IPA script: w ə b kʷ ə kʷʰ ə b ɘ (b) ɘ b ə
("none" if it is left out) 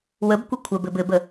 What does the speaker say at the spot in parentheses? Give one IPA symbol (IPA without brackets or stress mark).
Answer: b